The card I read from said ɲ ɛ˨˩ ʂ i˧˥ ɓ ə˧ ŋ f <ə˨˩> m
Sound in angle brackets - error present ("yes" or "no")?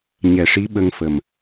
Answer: no